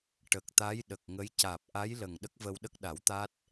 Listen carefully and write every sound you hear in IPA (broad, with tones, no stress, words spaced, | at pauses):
ʈə˨˩k̚t̪a˧˥jɗə˨˩k̚ŋə˧˥j caː˨˩p̚ʔa˧˥jlə˨˩ŋ ɗə˦˥k̚vəː˧wɗə˦˥k̚ɗa˨˩˦w t̪a˦˥t̚